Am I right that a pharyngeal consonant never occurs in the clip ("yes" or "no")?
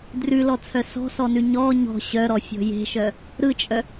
yes